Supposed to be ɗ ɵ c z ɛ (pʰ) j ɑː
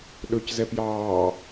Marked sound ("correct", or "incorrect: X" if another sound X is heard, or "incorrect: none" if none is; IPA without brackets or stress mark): incorrect: p